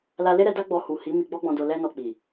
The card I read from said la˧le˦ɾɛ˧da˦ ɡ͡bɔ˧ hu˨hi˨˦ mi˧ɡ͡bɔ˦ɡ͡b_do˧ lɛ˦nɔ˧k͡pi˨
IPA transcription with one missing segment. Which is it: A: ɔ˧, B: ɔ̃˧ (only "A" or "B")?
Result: B